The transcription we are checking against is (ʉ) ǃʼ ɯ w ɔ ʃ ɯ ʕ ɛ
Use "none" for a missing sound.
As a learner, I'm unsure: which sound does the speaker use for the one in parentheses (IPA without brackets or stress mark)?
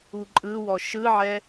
u